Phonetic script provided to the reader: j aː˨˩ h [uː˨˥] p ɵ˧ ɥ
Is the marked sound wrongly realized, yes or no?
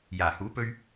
no